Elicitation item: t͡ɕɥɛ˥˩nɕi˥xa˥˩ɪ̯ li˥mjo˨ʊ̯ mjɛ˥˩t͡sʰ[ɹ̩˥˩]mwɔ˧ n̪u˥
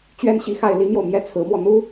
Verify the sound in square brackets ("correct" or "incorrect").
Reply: incorrect